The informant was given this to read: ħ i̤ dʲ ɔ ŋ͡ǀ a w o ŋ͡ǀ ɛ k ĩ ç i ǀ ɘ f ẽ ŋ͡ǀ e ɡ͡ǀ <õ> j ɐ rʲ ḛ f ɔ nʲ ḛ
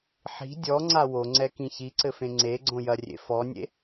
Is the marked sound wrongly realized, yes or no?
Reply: no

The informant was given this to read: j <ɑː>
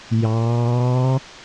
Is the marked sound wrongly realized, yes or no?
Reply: no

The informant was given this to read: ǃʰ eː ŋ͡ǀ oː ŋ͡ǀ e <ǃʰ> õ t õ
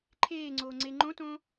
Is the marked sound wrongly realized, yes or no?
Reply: yes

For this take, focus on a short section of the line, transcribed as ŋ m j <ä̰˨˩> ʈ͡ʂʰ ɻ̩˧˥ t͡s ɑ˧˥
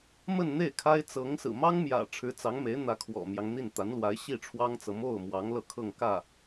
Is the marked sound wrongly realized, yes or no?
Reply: no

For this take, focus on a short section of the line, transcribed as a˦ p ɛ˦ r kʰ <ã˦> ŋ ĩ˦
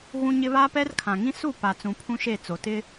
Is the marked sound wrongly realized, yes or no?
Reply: yes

